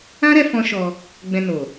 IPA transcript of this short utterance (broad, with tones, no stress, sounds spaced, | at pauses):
ã˦ ɾ ɛ˧ f ɔ̃˦ ʃ ɔ˧ | ɡ͡b ɛ̃˧ n o˨